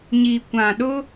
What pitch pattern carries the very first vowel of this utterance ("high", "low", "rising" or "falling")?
low